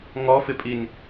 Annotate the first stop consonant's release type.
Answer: ejective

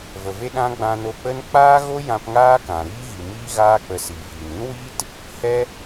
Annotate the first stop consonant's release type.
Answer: implosive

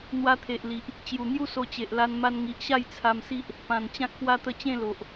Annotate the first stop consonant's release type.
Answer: aspirated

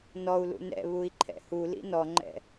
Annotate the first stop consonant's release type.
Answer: click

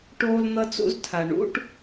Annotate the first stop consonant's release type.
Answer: plain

